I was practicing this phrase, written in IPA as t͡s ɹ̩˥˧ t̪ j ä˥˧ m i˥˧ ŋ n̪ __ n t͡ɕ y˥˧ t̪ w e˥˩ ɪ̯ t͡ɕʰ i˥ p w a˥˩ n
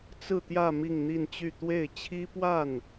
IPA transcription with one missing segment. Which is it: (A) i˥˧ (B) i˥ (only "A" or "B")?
A